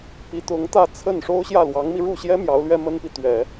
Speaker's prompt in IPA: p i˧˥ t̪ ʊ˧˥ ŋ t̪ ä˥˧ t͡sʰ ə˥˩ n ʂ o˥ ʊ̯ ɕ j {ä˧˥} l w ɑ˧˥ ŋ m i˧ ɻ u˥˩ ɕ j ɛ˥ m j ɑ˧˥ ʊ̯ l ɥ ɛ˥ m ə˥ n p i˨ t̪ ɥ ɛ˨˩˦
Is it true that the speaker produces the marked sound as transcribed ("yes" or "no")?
no